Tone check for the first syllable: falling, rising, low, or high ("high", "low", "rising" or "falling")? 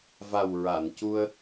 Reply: low